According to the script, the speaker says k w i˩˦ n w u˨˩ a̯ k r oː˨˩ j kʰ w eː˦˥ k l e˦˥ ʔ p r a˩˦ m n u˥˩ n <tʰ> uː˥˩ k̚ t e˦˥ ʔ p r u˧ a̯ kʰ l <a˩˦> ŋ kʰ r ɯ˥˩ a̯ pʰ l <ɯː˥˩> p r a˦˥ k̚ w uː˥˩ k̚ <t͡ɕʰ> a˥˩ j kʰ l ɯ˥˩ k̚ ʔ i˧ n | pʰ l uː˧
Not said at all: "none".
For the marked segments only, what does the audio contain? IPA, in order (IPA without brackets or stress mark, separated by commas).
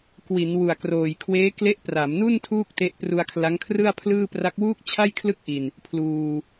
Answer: tʰ, a˦˥, ɯː˥˩, t͡ɕʰ